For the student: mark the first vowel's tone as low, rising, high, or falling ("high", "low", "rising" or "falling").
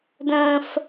high